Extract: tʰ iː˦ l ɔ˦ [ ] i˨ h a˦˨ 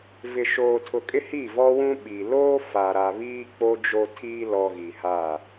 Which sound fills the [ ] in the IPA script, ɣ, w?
ɣ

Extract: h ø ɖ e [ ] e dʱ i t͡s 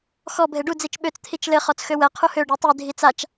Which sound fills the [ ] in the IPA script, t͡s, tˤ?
tˤ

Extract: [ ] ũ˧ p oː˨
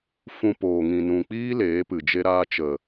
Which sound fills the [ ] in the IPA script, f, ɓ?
f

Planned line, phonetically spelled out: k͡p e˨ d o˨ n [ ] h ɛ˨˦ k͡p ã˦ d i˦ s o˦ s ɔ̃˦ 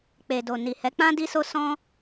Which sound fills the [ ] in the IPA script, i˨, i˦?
i˨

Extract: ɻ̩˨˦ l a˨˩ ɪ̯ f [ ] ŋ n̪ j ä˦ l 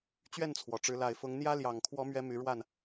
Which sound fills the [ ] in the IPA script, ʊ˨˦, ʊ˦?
ʊ˨˦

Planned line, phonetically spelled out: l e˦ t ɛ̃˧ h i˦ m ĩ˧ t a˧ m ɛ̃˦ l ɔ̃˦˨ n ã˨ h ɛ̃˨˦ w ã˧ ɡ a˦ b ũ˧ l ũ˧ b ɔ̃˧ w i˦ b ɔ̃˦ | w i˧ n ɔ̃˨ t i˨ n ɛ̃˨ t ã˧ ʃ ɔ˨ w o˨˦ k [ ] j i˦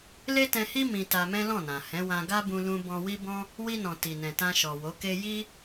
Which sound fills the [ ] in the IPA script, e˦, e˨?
e˦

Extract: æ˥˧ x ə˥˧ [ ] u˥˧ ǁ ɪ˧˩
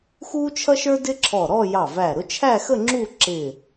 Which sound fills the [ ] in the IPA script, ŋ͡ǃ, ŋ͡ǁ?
ŋ͡ǁ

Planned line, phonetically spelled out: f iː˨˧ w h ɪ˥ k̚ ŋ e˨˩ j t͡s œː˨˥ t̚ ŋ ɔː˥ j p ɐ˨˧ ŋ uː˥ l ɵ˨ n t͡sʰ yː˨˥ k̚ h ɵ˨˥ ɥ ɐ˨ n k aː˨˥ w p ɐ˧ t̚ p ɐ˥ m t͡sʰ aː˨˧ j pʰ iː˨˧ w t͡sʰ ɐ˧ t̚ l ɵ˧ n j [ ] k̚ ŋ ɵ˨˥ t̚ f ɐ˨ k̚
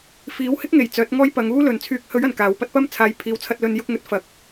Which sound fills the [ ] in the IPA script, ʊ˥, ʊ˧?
ʊ˧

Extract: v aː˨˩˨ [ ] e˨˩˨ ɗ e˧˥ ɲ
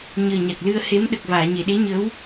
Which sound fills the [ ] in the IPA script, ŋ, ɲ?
ɲ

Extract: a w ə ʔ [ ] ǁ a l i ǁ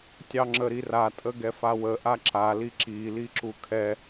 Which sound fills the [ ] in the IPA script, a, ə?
a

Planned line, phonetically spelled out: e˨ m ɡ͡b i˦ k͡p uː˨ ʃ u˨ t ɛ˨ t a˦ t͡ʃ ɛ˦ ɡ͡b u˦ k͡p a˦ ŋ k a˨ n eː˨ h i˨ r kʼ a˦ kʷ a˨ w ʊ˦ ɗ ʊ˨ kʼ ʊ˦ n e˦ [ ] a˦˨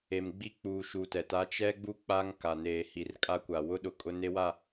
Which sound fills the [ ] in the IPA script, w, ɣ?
w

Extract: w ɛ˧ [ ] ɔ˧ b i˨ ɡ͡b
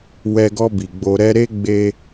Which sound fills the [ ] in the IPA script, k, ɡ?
ɡ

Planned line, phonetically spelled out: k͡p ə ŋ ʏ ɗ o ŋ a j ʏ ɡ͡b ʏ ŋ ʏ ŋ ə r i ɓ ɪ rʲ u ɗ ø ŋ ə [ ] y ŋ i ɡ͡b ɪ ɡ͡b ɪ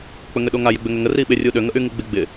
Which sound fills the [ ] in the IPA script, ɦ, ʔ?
ʔ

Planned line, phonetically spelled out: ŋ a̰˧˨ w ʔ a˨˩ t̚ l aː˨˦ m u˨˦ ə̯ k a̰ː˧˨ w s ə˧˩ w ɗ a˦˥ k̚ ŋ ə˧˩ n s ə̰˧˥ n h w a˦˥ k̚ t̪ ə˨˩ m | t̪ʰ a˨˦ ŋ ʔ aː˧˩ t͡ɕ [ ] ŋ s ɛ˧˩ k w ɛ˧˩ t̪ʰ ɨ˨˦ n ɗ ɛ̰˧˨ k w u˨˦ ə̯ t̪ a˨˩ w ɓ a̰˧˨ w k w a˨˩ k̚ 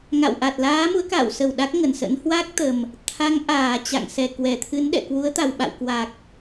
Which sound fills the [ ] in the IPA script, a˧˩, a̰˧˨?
a̰˧˨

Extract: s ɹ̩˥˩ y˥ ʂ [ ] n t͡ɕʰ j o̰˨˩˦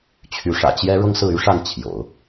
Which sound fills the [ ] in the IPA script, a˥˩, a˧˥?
a˥˩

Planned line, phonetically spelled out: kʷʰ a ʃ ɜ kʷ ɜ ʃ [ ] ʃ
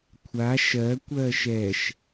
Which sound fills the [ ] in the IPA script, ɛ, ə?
ɛ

